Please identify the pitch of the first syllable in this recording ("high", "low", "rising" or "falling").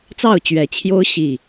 falling